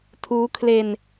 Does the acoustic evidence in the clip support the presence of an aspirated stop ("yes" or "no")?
yes